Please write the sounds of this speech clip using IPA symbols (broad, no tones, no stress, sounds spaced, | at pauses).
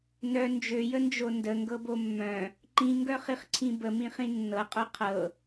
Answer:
n œ n d͡ʒ ø j ə n d͡ʒ o n d ə ŋ ɡ ɤ b o mː œ̃ | ǃ ĩ ŋ ɡ œ χ i χ ǀʰ ĩ b ə m ĩ χ ĩ nː ɤ qʼ œ qʰ ɤ